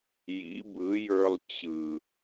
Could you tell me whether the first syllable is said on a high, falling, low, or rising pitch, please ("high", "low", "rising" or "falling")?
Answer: rising